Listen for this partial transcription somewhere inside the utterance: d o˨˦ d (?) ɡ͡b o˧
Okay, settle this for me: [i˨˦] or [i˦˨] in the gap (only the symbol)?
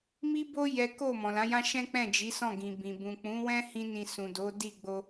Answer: i˦˨